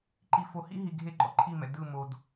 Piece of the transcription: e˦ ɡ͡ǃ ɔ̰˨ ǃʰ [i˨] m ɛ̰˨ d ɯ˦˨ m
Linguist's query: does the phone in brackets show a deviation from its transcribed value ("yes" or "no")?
yes